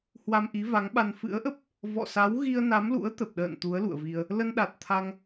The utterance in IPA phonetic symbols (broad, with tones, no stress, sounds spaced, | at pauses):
h w a˧ m ʔ i˨˦ v a˨˦ ŋ ɓ a˧ n f ɨ̰˧˥ ə̯ ʔ ə˦˥ p̚ | v ɔ̰˧˨ s a˨˦ w ɣ i˧ ə̯ n a˨˦ m l ṵ˧˥ ə̯ t̪ ə˨˩ p̚ ɗ ə̰ː˧˨ n t̪ u˨˦ ə̯ l ṵ˧˨ ə̯ v i˧ ə̯ | l ə˧ n ɗ a˨˩ t̚ t̪ʰ a˧ ŋ